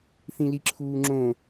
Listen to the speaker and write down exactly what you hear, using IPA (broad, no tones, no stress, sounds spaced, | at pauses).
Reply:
θ ĩ l i ǁʰ uː ŋ͡ǁ õ